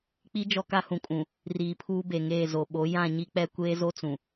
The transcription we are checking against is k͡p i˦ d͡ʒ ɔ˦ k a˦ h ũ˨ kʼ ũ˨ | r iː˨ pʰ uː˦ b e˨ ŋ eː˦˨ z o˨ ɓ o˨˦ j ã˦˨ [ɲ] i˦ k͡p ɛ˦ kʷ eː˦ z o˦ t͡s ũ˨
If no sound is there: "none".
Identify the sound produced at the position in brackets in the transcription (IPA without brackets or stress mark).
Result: ɲ